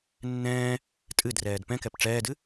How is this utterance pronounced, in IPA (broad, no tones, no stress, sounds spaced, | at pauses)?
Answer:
nː ɛ̃ː | tʼ ɨ d r ɛː d p ɛ̃ k ɛ p ʈ͡ʂ ɛː d ɨ